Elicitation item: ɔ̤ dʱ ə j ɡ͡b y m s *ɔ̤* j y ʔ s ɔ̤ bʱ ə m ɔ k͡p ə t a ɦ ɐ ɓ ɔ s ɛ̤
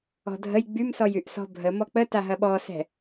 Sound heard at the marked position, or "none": ɔ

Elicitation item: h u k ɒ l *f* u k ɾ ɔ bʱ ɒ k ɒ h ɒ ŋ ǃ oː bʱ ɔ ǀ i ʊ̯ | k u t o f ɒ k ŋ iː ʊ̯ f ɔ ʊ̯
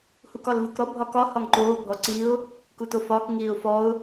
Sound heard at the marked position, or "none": v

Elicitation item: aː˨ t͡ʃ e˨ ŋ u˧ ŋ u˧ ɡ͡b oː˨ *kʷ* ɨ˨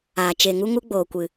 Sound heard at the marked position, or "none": kʷ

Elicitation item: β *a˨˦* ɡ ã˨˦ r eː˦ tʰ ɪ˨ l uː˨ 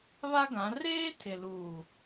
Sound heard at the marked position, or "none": a˦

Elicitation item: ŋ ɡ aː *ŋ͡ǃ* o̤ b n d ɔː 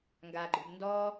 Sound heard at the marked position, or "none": ɡ͡ǃ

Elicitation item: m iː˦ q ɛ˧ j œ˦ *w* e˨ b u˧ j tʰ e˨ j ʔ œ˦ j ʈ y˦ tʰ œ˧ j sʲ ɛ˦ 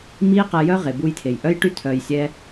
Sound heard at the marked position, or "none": ʁ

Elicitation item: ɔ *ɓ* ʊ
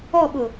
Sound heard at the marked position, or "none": ɓ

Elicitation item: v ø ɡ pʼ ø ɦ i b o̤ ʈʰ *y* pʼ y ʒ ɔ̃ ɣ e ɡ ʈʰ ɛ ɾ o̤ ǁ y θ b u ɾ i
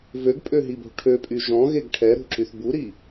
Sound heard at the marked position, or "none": ø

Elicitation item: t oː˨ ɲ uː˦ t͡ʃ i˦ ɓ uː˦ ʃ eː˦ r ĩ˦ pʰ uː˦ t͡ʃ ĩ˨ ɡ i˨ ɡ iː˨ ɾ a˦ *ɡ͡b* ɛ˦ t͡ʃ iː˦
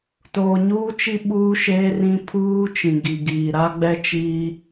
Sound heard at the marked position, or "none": ɡ͡b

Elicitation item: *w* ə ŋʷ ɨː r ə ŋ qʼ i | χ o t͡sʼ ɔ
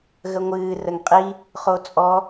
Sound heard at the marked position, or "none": ɣ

